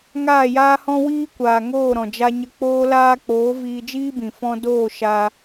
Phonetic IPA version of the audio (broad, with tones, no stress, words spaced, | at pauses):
ŋaː˦˨jaː˦hɔ̃˦ wiː˦kʷaː˨ŋoː˦˨ɾɔ̃˨ d͡ʒa˧ɲə˧ k͡poː˧laː˧k͡poː˨˦ viː˧d͡ʒiː˦bĩ˨ fɔ̃˧doː˦˨ ʃa˧